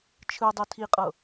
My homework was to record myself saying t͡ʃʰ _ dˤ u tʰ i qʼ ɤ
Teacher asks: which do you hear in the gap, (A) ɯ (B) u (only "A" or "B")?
A